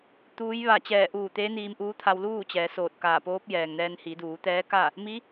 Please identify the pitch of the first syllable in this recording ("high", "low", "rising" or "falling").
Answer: rising